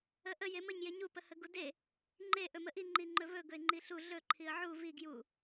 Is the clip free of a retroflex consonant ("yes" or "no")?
yes